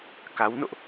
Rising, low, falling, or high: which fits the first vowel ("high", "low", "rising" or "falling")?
rising